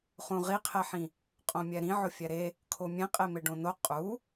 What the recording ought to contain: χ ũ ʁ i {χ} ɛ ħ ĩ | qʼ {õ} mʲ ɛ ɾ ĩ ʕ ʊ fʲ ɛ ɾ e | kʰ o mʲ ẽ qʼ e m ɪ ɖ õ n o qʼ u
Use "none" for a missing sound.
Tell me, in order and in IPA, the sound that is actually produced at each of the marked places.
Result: qʰ, õ

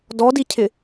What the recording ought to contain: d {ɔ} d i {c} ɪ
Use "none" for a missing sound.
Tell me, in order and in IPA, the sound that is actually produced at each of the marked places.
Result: ɔ, cʰ

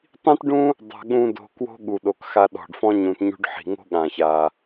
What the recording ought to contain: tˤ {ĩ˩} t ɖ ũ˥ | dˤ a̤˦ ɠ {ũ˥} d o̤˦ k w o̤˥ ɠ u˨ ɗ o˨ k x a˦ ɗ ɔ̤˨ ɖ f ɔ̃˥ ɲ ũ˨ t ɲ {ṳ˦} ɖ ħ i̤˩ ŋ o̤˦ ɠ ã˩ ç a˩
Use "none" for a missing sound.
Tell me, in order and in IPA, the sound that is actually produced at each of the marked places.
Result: ĩ˥, ũ˥, ṳ˦

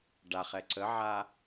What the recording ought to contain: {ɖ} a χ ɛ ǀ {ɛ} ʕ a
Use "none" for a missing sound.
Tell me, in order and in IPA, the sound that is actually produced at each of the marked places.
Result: ɖ, ə

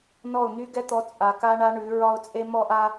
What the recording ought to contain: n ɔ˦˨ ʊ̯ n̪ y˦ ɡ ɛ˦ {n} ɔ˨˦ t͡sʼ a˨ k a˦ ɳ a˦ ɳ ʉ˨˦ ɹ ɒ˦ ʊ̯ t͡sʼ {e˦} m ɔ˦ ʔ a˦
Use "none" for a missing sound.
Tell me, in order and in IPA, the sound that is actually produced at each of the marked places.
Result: t̪, e˦

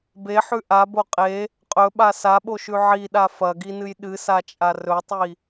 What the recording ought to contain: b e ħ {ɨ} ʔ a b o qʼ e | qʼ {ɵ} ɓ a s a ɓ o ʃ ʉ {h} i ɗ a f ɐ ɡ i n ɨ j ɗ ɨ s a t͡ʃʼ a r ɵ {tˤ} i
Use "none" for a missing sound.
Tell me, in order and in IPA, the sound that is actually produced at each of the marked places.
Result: ʉ, ɵ, ʕ, tˤ

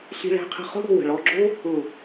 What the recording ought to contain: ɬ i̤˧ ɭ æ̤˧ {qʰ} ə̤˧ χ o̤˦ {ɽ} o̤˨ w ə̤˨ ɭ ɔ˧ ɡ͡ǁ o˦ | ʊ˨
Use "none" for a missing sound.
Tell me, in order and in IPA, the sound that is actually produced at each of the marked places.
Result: qʰ, ɽ

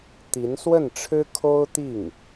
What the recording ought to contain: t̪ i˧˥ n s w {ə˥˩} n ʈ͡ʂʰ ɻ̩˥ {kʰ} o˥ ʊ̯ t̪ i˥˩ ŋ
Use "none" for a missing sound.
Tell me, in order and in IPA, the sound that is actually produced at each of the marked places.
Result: ə˥˩, kʰ

